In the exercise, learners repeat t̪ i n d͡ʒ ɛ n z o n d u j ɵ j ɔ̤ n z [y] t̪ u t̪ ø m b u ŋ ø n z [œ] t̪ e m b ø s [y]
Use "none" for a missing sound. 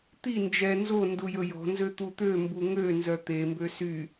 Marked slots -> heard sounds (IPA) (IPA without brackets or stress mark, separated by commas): ø, œ, y